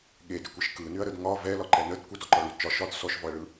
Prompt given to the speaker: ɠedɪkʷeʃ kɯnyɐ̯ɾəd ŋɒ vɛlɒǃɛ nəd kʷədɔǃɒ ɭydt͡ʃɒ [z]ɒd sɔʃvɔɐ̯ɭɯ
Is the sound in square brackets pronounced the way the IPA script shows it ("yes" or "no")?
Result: no